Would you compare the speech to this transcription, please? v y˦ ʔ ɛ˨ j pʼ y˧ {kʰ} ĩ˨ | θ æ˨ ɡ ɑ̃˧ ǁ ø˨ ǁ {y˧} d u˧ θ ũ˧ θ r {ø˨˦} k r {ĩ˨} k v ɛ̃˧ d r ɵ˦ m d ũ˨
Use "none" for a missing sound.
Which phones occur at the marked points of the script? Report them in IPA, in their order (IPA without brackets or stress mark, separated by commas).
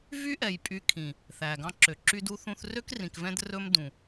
kʰ, y˧, ø˦, ĩ˨